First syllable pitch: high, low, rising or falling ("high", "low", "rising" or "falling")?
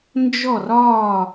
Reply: falling